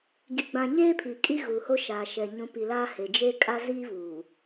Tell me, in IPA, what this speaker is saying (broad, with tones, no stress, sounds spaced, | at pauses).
ɡ i˨ ɡ͡b ã˨ ɲ eː˦ pʰ i˨ kʼ i˦ ɣ u˨ h o˦ ʃ aː˨ ʃ ɛ˨ ɲ ũ˨˦ p i˨ l aː˦ h e˨ d͡ʒ e˦ kʼ a˦ z iː˦ v uː˨